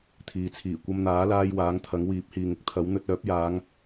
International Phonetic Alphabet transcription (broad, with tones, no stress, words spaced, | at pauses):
t̪ʰiː˨t͡sʰiː˨˩ kʷɐ˧mn̪aː˨˥laː˧j waː˨˥ŋt̪ʰɐ˨˥ŋ wiː˨˥p̚hiː˨ŋɪ˨k̚t̪ʰɐ˨˥w n̪ɵ˧t̚œː˨˥p̚jaː˨˧ŋ